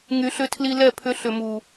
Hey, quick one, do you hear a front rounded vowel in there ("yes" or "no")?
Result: yes